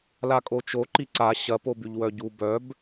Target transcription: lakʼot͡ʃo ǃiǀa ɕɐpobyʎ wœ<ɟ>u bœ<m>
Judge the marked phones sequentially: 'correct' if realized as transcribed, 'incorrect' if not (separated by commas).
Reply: correct, incorrect